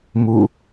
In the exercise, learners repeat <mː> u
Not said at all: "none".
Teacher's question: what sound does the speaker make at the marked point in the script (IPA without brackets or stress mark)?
m